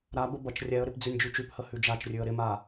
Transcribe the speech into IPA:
ɾabə bʌt͡ʃrʲɛə̯ɾɪp d͡zʉnʲd͡ʒʉt͡ʃʉphə hʉd͡ʒat͡ʃrʲʉə̯ ɾɪma

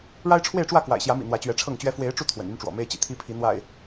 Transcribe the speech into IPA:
ɻa˦ɪ̯ʈ͡ʂʰwe˥˨ɪ̯ʈ͡ʂwä˥˨ kwa̰˨˩ɪ̯ɕjä˨˦mḭ˨˩ n̪wä˨˦t͡ɕɥɛ˨˦ʈ͡ʂʰɤ˥˨ŋt͡ɕɥɛ˦ fwe˨˦ɪ̯ʈ͡ʂu˧ t̪ʰwə̰˨˩ny˦nʈ͡ʂwɔ̰˨˩ me˦ɪ̯t͡ɕḭ˨˩ t̪ʰi˦pʰi˨˦ n̪wa̰˨˩ɪ̯

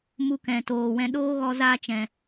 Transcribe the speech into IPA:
mu˧kɛ̃˨toː˨wɛ̃˧ ɗoː˦ɣɔ˧ zaː˧t͡ʃɛ̃˨

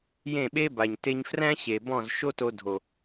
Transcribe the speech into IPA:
jẽ˦˨ɓe˦ba˨ɲ te˧ɲ fræ̃˦ɕe˨ bɔ̃˦˨z ʃo˦to˧ dʱo˨

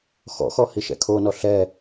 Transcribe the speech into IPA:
xɔ̰xɔ hiʃɛ̰kʰonɔ ɬɛ

